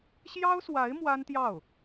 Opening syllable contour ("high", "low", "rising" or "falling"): high